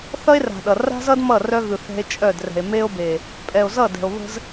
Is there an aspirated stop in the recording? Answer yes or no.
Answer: no